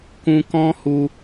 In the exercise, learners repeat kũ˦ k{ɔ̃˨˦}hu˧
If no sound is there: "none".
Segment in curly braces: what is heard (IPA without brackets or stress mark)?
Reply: ɔ̃˦